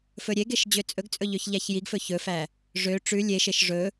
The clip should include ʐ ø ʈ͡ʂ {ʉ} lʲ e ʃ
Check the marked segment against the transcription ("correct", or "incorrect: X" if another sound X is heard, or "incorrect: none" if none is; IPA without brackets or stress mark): correct